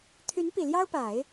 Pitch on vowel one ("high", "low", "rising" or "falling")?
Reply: rising